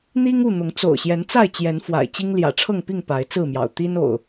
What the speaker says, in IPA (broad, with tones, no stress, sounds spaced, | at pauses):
n̪ i˦ ŋ u˥˨ n̪ ʊ˨˦ ŋ t͡s o̰˨˩ ʊ̯ ɕ j ɛ˨˦ n t͡s a˥˨ ɪ̯ t͡ɕ j ɛ˨˦ n f w a̰˨˩ ɪ̯ t͡ɕ i˦ ŋ l j ä̰˨˩ ʈ͡ʂʰ ɤ˥˨ ŋ p i˥˨ ŋ p a˨˦ ɪ̯ t͡s ɹ̩˥˨ m j ɑ̰˨˩ ʊ̯ t̪ i˦ n o̰˨˩ ʊ̯